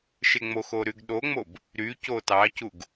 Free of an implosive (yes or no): no